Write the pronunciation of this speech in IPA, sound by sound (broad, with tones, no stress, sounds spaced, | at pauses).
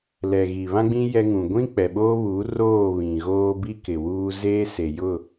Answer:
l ɛ˨ ɣ i˨ β ã˦ ɡ͡b ĩ˦ j ɛ˦ ŋ ũ˨ ɡʷ ĩ˦ k͡p ɛ˨ ɓ oː˦ β uː˨˦ r oː˦˨ β ĩ˨ ɣ oː˦ b i˦ k ɪ˨ w uː˦ z eː˦ s e˨ j ʊ˦˨